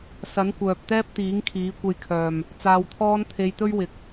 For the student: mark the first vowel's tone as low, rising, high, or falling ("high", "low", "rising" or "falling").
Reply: rising